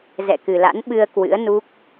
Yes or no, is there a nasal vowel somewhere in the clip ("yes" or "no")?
no